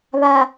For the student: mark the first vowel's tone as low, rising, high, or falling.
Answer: low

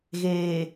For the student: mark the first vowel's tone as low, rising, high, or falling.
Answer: low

